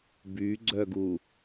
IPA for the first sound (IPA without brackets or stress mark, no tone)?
b